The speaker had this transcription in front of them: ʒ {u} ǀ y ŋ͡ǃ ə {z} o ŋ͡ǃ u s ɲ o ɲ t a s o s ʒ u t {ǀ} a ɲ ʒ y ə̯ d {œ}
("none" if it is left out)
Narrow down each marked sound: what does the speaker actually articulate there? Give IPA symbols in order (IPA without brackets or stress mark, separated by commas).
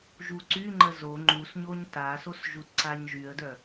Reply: u, z, ǀ, œ